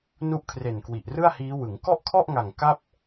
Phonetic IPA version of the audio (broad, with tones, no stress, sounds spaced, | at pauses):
n u˦˥ ʔ kʰ r e˨˩ n k w i˨˩ ʔ r ɯ˥˩ a̯ h iː˦˥ w ɯ˩˦ ŋ k ɔ˥˩ ʔ kʰ ɔ˥˩ ʔ ŋ a˨˩ ŋ k a˥˩ p̚